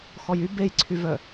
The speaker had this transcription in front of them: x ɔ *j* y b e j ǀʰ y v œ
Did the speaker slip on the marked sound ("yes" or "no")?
no